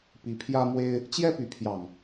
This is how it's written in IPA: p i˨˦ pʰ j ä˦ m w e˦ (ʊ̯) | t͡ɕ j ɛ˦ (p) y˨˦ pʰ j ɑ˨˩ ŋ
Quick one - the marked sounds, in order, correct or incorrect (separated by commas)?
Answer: incorrect, correct